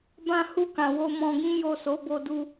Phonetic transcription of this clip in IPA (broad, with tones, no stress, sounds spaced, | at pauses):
b ã˧ h u˧ k ã˨ w o˧ m ɔ̃˧ ɡ ĩ˦ j o˦˨ s o˨˦ b o˧ d u˧